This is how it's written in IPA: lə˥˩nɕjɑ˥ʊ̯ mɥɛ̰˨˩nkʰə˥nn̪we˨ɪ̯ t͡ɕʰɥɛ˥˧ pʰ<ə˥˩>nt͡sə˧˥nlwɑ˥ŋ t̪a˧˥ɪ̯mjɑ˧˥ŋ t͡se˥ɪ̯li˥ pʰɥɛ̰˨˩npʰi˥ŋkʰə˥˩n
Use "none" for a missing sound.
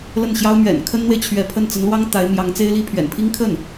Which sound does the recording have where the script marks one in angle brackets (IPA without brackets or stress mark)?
ə˥˩